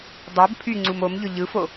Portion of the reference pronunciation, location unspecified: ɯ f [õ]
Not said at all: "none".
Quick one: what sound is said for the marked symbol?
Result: o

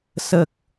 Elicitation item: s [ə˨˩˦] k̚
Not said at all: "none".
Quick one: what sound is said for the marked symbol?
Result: ə˨˩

